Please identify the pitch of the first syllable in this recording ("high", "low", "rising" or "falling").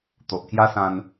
low